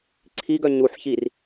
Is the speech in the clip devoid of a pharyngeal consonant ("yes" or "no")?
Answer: no